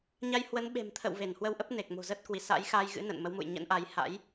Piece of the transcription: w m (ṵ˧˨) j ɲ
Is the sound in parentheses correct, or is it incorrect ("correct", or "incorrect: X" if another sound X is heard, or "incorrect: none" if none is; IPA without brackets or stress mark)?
correct